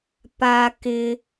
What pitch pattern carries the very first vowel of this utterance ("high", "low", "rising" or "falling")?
high